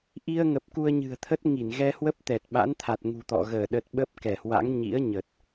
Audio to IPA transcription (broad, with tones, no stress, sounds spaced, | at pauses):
ʔ i˧ ə̯ ŋ ə˨˩ p̚ k u˧ ə̯ ɲ ɨ̤˨˩ ə̯ t̪ʰ ə˦˥ t̚ ŋ i˧˩ n ɣ ɛ˧ h w ə˦˥ p̚ t̪ ɛ˨˩ t̚ ɓ a̰˧˥ n t̪ʰ a˨˩ t̚ ŋ ṳ˨˩ t̪ ɔ̰˧˨ ɣ əː˧˩ ɗ ə˨˩ t̚ ɓ ə˦˥ p̚ k ɛ˧˩ h w a̰˧˥ ŋ ɲ ḭ˧˥ ə̯ ɲ ə˨˩ t̚